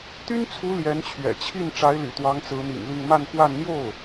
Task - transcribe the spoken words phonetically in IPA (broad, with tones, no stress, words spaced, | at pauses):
t̪y˥nt͡sʰu˧˥ ljɛ˧˥nt͡ɕʰɥɛ̰˨˩t͡ɕʰi˥˩n ʈ͡ʂa˧˥ɪ̯ly̰˨˩t̪wɑ˧˥ŋ t͡sɹ̩˧˥n̪ḭ˨˩ŋli˥˧ŋ ma˥˧nxwa˥˧n n̪jo˥˩ʊ̯